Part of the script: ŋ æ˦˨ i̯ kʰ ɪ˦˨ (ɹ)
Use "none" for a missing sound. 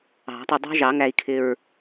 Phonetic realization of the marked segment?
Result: ɹ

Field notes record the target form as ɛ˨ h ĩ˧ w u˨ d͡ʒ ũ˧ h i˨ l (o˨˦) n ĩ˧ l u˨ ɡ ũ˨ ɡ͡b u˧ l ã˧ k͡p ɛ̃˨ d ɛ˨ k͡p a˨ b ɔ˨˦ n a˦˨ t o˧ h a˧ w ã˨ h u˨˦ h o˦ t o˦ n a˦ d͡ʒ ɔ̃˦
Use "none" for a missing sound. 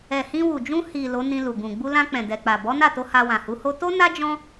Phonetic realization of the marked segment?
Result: o˨˦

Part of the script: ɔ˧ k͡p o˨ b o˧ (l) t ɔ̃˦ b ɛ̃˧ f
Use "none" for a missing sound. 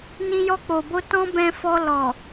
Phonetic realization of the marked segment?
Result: none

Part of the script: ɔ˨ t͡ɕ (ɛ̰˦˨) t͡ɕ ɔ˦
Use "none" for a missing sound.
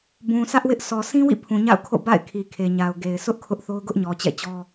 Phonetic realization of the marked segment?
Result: ɛ̰˦˨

